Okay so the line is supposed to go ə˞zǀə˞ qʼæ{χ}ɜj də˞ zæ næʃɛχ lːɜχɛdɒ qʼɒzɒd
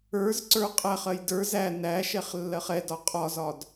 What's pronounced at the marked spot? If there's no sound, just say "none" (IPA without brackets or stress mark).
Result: χ